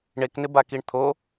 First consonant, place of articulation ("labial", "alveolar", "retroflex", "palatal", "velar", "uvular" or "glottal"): retroflex